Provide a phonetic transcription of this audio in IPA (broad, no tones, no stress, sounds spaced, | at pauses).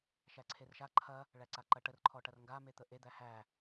ʃ æ ǀʰ e r ʃ a ǃʰ ɐ | ɭ æ ǀ a ǃ ɐ ʈ ə r ǃʰ ɔ ʈ ɐ r ŋ ɡ a m e t̪ ə ʔ e d̪ æ h æ